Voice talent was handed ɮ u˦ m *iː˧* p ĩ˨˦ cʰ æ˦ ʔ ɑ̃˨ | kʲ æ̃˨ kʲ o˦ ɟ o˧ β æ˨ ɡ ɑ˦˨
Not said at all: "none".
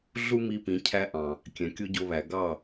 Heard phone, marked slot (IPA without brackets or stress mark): i˧